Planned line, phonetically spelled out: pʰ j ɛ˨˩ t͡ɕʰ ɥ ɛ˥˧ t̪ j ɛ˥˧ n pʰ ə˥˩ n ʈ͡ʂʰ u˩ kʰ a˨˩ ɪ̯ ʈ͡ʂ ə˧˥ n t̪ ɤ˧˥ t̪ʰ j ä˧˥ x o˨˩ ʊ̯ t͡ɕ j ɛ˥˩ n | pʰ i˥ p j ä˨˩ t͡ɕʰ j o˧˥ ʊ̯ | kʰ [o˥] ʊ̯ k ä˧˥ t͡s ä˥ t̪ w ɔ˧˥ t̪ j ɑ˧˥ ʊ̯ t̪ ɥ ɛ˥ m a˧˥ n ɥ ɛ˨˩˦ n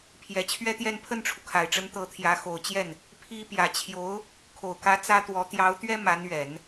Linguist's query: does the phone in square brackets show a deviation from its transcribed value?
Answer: yes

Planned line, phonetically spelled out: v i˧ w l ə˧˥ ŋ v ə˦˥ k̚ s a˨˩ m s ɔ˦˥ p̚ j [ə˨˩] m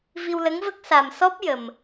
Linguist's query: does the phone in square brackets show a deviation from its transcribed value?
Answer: no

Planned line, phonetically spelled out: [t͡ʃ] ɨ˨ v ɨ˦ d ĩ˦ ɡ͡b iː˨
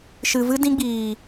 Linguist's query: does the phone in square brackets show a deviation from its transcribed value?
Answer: yes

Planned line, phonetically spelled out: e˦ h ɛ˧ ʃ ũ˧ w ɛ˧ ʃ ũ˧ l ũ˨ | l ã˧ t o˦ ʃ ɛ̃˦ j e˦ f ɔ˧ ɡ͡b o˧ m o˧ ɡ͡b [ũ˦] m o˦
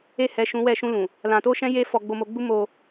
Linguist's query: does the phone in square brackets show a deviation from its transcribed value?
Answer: yes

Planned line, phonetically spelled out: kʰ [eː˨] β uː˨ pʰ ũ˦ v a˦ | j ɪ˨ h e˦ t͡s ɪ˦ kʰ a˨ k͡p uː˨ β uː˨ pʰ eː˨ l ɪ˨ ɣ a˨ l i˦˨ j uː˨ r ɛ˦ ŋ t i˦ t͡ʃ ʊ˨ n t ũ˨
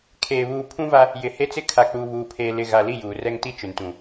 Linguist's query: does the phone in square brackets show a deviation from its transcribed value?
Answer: no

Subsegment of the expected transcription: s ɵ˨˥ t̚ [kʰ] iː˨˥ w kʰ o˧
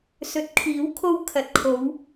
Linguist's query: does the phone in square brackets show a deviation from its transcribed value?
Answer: no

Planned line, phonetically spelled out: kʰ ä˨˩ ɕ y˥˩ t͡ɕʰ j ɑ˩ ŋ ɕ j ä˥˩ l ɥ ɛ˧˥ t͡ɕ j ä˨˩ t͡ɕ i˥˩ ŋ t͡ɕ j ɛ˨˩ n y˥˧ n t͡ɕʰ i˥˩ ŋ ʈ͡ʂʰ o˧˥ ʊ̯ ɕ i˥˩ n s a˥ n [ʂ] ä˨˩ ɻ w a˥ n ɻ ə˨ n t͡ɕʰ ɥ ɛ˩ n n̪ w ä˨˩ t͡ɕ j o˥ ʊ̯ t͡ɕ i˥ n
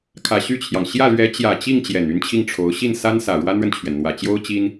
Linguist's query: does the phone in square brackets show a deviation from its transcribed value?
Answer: yes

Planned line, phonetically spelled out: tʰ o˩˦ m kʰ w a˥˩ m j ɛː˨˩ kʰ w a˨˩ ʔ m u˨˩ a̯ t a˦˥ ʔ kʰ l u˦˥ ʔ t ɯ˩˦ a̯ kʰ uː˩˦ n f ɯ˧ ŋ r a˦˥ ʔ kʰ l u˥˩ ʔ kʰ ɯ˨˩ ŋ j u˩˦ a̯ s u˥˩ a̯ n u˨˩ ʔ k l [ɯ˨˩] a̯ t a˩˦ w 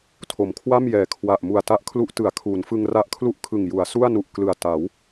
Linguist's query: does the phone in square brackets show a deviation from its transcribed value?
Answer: no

